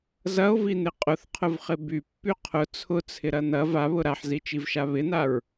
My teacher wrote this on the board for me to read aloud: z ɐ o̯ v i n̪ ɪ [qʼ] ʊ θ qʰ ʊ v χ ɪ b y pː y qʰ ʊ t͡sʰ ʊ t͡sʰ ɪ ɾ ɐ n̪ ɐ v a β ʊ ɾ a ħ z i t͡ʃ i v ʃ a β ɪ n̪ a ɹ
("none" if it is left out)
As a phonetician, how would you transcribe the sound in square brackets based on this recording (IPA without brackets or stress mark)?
qʼ